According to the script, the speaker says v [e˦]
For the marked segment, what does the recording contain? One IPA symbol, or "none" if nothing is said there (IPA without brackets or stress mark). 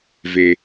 e˦